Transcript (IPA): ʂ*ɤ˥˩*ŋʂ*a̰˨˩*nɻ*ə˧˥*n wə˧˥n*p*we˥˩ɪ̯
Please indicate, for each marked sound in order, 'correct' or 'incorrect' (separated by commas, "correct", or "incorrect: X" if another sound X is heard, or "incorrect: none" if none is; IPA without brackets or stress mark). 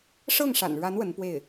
correct, correct, incorrect: a˧˥, correct